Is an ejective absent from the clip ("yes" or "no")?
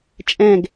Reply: no